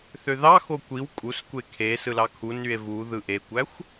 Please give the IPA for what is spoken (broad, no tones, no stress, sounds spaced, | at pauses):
θ ø ð ɑ x o kʷ i w kʼ u s kʷ e kʰ e s ɯ l ɑ kʰ u n y e̯ v u ð ɯ ʔ e kʷ æ xʷ